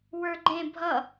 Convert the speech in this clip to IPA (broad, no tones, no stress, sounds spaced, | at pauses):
w ə˞ ɡ͡ǃ ẽ bʱ ʌ